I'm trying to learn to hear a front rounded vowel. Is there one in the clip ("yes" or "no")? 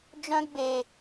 yes